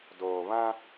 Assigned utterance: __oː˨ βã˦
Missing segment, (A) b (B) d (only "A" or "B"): B